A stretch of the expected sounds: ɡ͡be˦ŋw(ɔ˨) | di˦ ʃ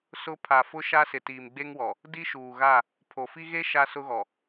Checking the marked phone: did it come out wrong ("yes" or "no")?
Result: no